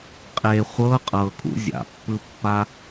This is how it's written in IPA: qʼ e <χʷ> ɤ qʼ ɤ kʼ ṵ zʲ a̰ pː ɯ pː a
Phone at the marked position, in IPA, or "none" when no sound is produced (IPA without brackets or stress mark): χʷ